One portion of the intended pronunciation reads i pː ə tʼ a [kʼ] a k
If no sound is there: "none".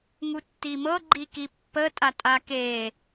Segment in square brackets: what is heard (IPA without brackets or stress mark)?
tʼ